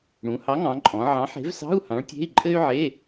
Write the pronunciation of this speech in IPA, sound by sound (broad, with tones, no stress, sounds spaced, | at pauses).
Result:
ɽ ũ˩˧ h ɑ˨˥ ŋ ɑ̃˩˧ ǃʼ ɔ̃˩˧ ʕ ɑ̃˨˥ ħ e̤˨˥ v s ɑ̤˧˥˧ u̯ h ɑ̃˨˥ ɭ tʲ e̤˧˥˧ i̯ ǃʼ ɘ˥ y̯ ʕ e˧˥˧